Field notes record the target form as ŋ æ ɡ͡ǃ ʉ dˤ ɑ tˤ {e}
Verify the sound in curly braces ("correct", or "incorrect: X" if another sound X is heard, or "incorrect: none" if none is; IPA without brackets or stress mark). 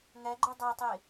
correct